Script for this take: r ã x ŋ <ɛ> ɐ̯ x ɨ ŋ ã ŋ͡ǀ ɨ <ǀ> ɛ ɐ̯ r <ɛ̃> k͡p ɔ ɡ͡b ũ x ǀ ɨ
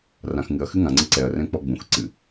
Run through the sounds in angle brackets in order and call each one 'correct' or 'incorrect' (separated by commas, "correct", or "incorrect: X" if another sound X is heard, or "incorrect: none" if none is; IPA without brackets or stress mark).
incorrect: ɨ, correct, correct